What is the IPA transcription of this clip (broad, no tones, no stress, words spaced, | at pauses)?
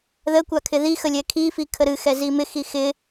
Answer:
ðəkʷa kʰɪðixəlʲɛ kʰifikʰə ɾɨ xɛzimɪ xixɪ